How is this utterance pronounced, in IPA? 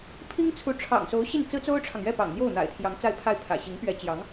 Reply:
pʰi˥ŋt͡sʰu˧˥ ʈ͡ʂʰɑ̰˨˩ŋso˧˥ʊ̯ɕi˥˩n t͡sɹ̩˥t͡so˥ʊ̯ʈ͡ʂʰɑ˨ŋ ɥɛ˥˩pɑ̰˨˩ŋ n̪jo˥˩ʊ̯n̪a̰˨˩ɪ̯ t̪ʰjɑ˧˥ŋt͡sa˥˧ɪ̯pʰa˥˩ɪ̯ pʰä̰˨˩ɕi˧˥ŋpɥɛ˧˥ t͡ɕjɑ˧˥ŋ

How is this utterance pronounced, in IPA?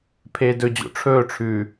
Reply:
pʰeːdɵd͡ʑo̰ ʈ͡ʂʰɵːʈ͡ʂʰʉː

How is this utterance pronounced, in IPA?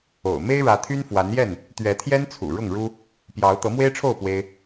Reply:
o̰˨˩ʊ̯ me˦ɪ̯ɻä˨˦t̪ʰy˦nfwa˨˦n jɛ˥˨n | t̪ɥɛ˨˦t̪ʰjɛ˦nt͡sʰṵ˨˩ ɻʊ˥˨ŋɻu˦ | pjɑ˨˦ʊ̯ t̪ɤ˨˦mwe˦ɪ̯ʈ͡ʂʰo˥˨ʊ̯ pwe˦ɪ̯

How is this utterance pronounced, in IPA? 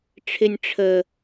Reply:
ʈ͡ʂʰɪnʲ ʈ͡ʂʰə

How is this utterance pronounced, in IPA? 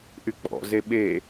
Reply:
ʔyk͡pɔ̰ zeɓe

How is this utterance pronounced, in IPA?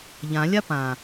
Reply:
ʎãlʲa pã

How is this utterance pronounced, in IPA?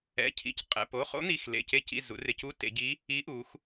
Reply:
ɛ̰˩˧˩cʰḭ˩˧c qʼɛ̰˩˧˩p o˩˧˩χo̰˧˥n̪i˩˧˩x lḛ˩˧˩ce˧˥cḭ˩˧˩ zṵ˩˧rɪ˩˧˩cu˧˥ tḛ˩˧ɟi˧˥ | i˧˥ ʔu˩˧x

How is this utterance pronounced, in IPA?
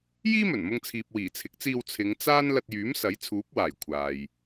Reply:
jiː˥mɵ˨˩nmʊ˧ŋt͡sʰiː˨p̚ wiː˨˩t͡sʰɪ˨˥k̚t͡siː˧w t͡sʰɪ˨˧ŋ t͡saː˥n lɐ˧t̚jyː˨˥msɐ˨˥j t͡sʰuː˨˥p̚waː˨˩j kʷʰaː˨j

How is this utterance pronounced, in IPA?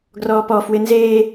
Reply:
ɡrɔːpɔ fwɪnzeː

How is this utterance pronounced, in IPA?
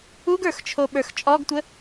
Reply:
uɡə˞x t͡ʃʰoɓə˞xt͡ʃʼɔɡtʷə

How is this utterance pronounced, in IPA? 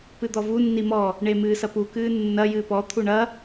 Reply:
pɨd̪ɔvu nːimɔ | ɳemɨːsɐpu kɨːnːɐ jɨːpɔ t̪ʰuɳɐ

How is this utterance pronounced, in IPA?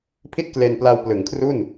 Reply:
pʰi˥˩t̚kle˧npla˧w plɯ˩˦ŋkʰru˥˩n

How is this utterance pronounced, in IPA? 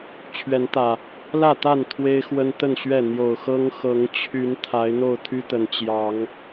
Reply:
t͡ɕʰɥɛ˨˦nt̪ä˨˩ | lä˥˨t̪a˥˨n t̪ʰwe˦ɪ̯xwə˦nt̪ə˥˨nɕɥɛ˥˨ n̪jo˨˩ʊ̯xɤ˦ŋ xɤ˨˦ŋt͡ɕʰy˨˦n t̪ʰa˨˦ɪ̯n̪o˥˨ʊ̯t̪ʰy˦t̪ə˨˦n t͡ɕjɑ˨˦ŋ

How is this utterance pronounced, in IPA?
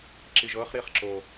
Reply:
ǁiʒɤχ ɾiχǁo

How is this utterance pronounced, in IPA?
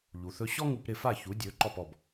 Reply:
ʎu˩θɵ˧ ɕɔ˥ŋu˧pɾɪ˥˩fa˥˩ çu˩˥dʲɵ˩˥ ǃɔ˥˩pɔ˥˩b

